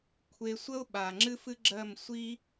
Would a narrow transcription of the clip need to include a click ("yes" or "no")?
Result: yes